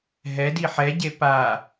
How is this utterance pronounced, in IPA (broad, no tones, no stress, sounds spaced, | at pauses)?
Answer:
ɦ ɛ d i ħ ɛ ɟ e p a